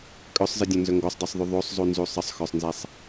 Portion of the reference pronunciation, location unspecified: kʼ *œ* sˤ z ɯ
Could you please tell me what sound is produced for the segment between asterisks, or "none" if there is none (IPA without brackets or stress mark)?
œ